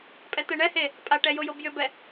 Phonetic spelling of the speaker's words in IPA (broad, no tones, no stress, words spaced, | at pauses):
pʼɛt̪ɛɳɛhe | pʼaʈɛ jojobjʏbɛ